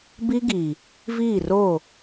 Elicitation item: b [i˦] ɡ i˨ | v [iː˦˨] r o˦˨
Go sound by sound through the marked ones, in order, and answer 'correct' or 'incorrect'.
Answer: correct, correct

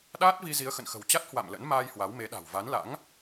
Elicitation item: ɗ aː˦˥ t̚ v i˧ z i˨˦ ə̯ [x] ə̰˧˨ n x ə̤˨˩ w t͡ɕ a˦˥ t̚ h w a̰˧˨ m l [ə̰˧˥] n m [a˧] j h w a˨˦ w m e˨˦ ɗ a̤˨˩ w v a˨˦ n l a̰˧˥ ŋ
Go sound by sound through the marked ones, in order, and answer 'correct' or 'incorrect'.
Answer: correct, correct, incorrect: aː˧

